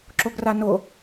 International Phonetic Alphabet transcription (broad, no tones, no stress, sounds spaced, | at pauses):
ǁ o ɡ r a n o